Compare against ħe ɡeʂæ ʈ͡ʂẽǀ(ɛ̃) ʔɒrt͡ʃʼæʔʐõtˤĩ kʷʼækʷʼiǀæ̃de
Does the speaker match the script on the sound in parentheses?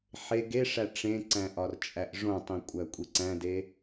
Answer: no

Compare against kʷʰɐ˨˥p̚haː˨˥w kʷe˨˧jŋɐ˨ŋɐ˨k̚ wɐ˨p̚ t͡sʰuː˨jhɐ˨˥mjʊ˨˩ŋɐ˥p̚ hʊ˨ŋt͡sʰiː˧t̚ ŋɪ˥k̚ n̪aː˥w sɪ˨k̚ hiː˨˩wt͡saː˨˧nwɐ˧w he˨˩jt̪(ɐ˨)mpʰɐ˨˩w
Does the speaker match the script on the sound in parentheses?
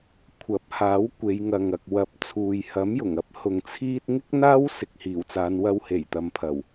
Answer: yes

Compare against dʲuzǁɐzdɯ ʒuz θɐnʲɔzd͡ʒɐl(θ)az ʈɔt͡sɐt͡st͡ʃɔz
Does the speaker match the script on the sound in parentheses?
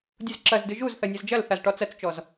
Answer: yes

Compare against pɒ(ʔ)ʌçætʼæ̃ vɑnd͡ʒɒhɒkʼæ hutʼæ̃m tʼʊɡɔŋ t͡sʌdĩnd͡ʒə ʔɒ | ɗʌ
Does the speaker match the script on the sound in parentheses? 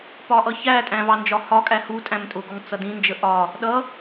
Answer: yes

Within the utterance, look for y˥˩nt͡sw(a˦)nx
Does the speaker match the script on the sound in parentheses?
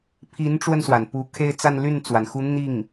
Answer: no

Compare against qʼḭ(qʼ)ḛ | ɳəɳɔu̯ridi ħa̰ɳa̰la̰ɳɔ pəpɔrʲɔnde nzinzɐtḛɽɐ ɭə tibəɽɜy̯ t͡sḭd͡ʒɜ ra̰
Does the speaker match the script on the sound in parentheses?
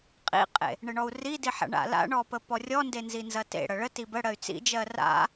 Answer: yes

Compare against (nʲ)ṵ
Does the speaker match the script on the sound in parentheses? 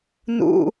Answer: no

